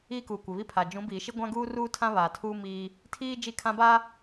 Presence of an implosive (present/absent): absent